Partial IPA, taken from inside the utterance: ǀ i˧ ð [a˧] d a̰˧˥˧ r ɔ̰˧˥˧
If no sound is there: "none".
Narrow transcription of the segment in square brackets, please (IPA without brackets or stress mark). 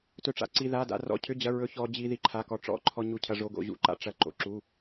a˧˥˧